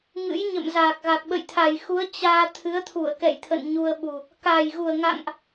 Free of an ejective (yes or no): yes